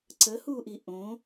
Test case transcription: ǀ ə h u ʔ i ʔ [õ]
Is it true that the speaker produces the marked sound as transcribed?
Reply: yes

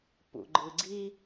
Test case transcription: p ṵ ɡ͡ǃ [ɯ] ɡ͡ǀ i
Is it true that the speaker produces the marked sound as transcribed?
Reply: yes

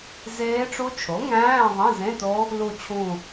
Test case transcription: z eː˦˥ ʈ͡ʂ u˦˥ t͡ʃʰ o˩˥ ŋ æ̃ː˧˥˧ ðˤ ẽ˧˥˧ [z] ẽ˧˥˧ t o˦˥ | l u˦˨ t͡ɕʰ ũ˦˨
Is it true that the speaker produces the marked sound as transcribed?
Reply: yes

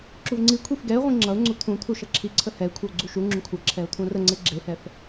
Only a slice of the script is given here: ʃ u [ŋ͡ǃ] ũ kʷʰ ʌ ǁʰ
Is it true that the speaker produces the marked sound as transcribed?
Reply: no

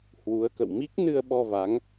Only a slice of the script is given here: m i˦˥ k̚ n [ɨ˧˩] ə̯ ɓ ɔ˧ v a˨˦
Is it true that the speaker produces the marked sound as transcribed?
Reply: no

